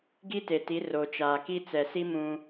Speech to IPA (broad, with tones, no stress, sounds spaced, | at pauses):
ɡ i˦ t e˨ t i˨˦ r o˨ t͡ʃ aː˨ k i˦ t͡s ɛ˨ s i˦ m ũ˦